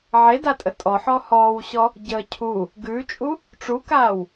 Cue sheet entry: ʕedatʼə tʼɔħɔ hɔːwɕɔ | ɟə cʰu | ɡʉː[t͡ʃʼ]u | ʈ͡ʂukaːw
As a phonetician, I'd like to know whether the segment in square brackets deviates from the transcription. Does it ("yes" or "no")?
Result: no